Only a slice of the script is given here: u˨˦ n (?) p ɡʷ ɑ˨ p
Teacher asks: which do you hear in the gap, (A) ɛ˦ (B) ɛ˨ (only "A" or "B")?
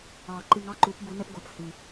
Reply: A